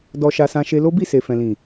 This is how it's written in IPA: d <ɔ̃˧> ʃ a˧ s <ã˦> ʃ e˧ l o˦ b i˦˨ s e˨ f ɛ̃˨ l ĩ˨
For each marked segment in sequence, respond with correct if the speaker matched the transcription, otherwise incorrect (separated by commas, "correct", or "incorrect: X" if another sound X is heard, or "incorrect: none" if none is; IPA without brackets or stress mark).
incorrect: ɔ˧, incorrect: ã˧